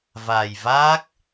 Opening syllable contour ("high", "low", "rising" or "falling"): low